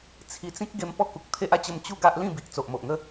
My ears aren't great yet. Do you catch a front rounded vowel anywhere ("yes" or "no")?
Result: no